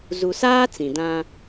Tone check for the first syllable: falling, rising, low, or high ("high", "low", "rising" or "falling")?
low